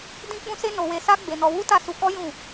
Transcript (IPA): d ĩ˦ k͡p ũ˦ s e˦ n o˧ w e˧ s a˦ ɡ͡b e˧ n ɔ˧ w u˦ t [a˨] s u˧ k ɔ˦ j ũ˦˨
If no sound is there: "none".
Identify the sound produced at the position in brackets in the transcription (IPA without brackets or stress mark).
a˦˨